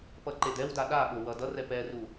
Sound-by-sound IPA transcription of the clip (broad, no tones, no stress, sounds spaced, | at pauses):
p ʌ ǃ e d ɛ w d a ɗ a ɓ o w ʌ d ʌ r ɛ p ɛ r u